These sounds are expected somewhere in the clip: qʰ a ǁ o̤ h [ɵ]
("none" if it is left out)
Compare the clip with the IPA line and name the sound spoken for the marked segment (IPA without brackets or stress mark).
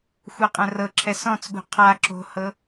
ɤ